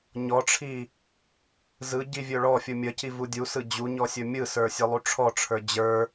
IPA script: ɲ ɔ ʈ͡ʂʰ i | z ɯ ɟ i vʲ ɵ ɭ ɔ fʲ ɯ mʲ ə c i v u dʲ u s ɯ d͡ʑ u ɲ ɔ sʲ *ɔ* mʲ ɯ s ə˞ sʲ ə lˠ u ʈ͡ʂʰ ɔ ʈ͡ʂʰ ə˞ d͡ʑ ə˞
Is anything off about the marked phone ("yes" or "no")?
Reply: yes